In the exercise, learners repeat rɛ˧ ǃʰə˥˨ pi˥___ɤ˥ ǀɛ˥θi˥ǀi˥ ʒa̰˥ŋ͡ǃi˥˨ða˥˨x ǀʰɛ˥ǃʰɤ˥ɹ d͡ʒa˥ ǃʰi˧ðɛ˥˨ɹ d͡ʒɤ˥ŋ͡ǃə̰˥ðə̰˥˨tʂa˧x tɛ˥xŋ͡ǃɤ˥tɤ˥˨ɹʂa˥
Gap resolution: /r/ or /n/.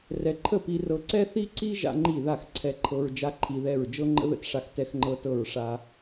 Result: r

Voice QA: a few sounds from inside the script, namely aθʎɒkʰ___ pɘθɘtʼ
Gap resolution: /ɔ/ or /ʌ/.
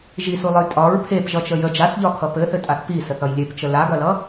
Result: ʌ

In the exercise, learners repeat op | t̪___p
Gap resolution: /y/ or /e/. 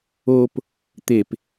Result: e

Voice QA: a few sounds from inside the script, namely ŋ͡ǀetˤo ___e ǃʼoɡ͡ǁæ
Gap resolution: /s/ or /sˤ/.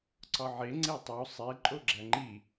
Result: sˤ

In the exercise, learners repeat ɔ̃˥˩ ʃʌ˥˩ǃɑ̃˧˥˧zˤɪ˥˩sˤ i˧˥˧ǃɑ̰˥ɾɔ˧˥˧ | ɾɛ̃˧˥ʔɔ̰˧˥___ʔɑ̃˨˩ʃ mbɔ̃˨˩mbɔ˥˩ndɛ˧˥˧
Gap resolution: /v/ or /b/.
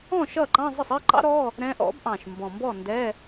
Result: b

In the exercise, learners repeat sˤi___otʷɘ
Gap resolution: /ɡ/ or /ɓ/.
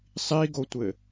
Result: ɡ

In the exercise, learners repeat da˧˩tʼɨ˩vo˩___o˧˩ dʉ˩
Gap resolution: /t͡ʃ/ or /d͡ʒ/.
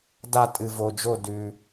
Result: d͡ʒ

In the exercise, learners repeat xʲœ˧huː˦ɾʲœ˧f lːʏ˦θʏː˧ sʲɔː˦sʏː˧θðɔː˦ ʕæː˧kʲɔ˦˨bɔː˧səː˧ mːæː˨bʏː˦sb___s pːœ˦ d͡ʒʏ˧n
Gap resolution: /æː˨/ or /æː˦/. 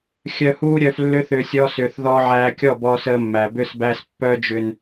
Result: æː˦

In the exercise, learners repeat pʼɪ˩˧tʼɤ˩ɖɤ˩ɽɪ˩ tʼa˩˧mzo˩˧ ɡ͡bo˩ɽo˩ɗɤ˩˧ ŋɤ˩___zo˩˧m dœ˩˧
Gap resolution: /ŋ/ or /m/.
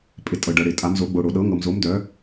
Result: m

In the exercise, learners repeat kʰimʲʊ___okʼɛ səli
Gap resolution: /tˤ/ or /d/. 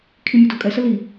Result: d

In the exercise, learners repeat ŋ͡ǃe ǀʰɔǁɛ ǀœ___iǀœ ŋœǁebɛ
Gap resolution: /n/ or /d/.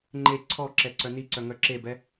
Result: n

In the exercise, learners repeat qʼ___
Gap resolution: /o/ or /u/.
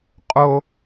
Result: o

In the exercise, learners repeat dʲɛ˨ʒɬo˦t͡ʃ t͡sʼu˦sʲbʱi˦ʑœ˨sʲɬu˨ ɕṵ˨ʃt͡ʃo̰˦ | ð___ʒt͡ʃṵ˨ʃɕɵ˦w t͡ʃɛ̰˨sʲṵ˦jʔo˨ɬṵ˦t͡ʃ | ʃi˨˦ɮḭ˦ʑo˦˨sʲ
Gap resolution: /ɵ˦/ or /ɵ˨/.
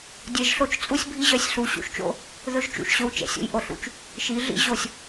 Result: ɵ˦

